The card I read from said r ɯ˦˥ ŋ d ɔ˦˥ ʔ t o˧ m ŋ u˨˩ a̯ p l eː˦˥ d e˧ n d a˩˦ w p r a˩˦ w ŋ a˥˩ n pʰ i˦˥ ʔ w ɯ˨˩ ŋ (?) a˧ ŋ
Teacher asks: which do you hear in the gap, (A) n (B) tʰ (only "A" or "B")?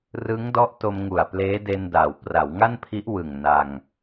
A